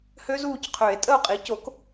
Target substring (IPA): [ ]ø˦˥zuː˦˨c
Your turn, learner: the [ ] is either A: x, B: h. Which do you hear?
B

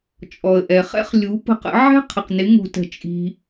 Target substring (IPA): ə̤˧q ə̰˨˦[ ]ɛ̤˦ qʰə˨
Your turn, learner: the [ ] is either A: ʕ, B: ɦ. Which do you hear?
A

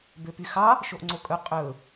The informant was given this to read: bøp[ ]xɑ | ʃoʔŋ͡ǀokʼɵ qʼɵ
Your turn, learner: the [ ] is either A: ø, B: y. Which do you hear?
B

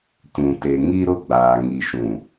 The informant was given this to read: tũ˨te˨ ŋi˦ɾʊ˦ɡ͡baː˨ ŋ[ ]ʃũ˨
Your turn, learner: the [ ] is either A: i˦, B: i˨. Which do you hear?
B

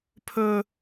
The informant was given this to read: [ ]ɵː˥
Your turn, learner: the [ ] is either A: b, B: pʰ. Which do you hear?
B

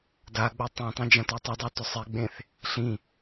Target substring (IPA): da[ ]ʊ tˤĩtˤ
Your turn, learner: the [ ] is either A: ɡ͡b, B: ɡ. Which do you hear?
A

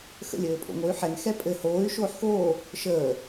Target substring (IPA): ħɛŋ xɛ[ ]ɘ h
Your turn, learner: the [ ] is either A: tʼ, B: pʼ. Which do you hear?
B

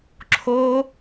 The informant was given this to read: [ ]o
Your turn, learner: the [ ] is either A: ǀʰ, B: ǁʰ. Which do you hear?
B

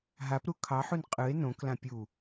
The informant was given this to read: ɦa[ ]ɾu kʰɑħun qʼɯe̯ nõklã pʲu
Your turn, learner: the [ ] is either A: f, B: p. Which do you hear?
B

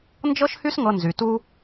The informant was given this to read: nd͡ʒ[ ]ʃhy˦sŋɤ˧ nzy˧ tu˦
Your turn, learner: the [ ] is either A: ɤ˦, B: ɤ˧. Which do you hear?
A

